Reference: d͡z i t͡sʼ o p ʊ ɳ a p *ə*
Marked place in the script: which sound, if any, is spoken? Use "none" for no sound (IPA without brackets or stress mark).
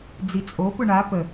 ə